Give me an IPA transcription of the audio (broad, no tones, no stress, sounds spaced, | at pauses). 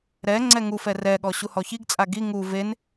ɾ ɛ ŋ͡ǀ ɛ ŋ u f ɛ r ɛ ɠ ɔ ɕ u h ɔ ç i ɡ t͡sʼ a ɡ i ŋ u v e n